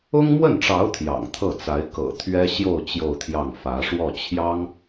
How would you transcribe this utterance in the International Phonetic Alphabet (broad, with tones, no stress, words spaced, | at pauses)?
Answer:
ʊ˥ŋmwə˥˩nʈ͡ʂɑ˧˥ʊ̯ t̪ʰjɑ̰˨˩ŋt̪ʰɤ˥˩t͡sa˧˥ɪ̯ kɤ̰˨˩t̪ʰɥɛ˥ ɕjo˥˧ʊ̯ t͡ɕjo˥˧ʊ̯t̪ʰjɑ˥˩ŋ fä˧˥ ʂwɔ˥˩t͡ɕʰjɑ˥ŋ